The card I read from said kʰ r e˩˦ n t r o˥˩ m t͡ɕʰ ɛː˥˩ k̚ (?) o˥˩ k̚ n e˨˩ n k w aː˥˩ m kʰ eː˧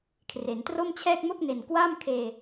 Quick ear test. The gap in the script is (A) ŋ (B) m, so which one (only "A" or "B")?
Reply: B